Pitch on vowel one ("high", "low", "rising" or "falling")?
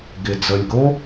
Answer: low